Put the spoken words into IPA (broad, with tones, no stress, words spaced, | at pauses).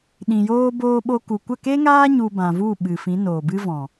ɗĩ˨joː˧ boː˧ɓo˧ku˨kʷə˦˨ ke˦ŋaː˦ ɲu˧bã˨vu˦˨ ɓɨ˨fĩ˨˦noː˨bɨ˦ vɔ̃˨